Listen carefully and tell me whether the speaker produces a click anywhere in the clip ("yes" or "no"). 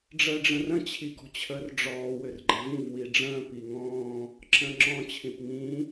yes